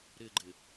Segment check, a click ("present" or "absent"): present